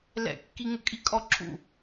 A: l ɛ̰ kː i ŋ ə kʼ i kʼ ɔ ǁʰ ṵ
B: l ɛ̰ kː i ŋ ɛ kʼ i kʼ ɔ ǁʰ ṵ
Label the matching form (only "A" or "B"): A